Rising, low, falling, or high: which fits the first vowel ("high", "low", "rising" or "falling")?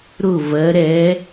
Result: falling